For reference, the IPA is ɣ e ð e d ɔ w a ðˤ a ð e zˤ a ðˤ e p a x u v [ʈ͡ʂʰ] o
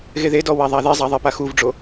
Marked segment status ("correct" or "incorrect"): incorrect